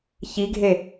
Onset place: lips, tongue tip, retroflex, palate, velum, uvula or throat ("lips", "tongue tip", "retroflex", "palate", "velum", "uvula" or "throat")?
palate